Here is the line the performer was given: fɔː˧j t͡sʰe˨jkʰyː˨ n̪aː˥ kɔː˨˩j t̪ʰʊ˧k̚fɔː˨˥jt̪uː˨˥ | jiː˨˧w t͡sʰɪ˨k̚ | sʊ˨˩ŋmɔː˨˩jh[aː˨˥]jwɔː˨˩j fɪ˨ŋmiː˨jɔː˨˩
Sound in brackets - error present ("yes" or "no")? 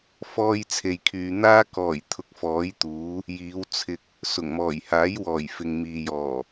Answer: no